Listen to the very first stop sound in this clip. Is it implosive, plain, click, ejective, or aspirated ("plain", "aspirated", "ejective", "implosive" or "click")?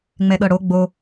implosive